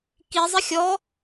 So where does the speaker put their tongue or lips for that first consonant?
velum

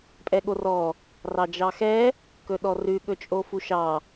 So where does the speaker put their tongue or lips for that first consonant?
lips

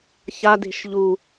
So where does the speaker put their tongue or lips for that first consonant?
palate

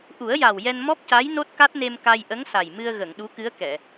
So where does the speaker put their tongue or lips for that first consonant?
throat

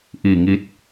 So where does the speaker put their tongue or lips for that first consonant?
throat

